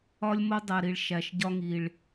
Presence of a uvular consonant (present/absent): absent